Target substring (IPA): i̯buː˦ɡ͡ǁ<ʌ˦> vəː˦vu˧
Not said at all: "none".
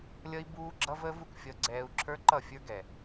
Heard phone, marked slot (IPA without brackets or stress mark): ʌ˦